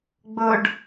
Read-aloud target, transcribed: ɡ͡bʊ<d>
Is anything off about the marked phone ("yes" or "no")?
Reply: yes